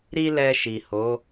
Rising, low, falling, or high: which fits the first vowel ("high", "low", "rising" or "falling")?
high